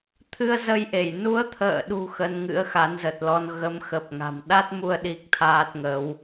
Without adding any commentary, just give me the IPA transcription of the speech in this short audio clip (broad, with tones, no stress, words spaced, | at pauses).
t̪ʰɨ˧ə̯zə˧jʔe˧˩j nu˨˦ə̯t̪ʰə̰ː˧˨ɗṳ˨˩ xə˧nŋɨ̰˧˥ə̯ xa˨˦nzə˨˩t̚lɔ˧n ɣə˨˦mxə˨˩p̚ŋa̤˨˩m ɗa˦˥t̚mu˧ə̯ ɗi˦˥k̚t̪ʰaː˦˥t̚ŋə˨˦w